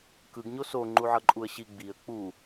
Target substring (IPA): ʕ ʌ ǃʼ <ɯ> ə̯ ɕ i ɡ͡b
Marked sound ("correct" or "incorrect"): incorrect